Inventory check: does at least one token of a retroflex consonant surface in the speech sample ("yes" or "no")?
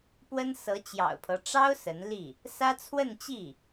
yes